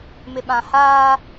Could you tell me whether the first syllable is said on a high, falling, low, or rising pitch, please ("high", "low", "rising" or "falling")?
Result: low